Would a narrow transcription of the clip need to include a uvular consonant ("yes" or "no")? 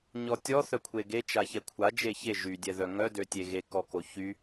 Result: no